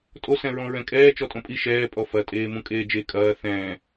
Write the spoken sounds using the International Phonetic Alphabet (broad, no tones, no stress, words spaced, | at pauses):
tʼosɛ̃ɹɔ̃ ɹɛ̃kʼɛː t͡ʃɔtʼõpʼi ʃɛː pʼɔfɐ tʼeːmũkʼeːd͡ʒe kʼɐː θɛ̃